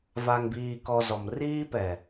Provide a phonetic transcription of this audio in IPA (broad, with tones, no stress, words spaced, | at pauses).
va˨ŋbiː˨kɔ˨ zɔ˨mriː˦ pɛ˨